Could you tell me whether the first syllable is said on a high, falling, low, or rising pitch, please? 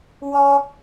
high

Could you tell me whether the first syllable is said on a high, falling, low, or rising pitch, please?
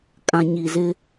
low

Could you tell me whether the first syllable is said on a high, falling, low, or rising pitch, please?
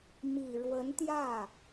low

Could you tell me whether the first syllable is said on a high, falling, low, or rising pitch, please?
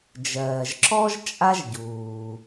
low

